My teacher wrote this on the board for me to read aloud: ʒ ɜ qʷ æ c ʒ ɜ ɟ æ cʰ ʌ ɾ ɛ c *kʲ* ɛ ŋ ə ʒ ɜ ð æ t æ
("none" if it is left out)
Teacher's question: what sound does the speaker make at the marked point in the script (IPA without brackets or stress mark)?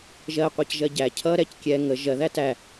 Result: kʲ